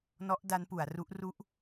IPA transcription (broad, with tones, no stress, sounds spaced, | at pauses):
n ɔ˦˥ ʔ d a˦˥ n p u˩˦ a̯ r u˦˥ ʔ r u˦˥ ʔ